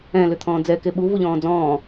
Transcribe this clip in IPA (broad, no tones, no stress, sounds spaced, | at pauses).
ɛ̃ l ʏ t̪ʰ ɔ̃ː d͡z ɛ k e ɓ u v u ʎ ɔ̃ː d͡z ɔ̃ː